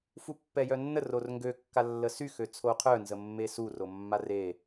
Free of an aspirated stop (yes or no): no